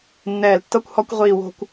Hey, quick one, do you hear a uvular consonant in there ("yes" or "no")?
yes